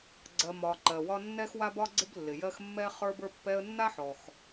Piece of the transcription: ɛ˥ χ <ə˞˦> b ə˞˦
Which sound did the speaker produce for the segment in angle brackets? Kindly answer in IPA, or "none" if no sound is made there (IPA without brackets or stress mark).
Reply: ə˞˦